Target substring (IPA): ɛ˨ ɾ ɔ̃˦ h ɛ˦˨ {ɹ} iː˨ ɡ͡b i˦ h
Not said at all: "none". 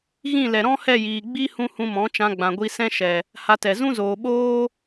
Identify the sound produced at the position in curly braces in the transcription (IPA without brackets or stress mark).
j